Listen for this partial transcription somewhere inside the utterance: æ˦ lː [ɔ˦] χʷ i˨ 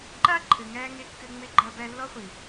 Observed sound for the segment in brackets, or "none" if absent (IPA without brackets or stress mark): ɔ˦